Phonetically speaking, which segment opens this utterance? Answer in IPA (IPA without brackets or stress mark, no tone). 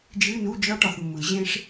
d͡ʒ